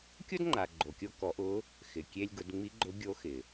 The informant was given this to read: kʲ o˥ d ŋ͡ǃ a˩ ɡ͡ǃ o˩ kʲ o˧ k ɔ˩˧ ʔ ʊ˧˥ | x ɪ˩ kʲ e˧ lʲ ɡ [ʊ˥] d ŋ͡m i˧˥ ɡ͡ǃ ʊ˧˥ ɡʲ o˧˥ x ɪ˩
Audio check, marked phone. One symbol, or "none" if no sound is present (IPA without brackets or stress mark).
ʊ˩˧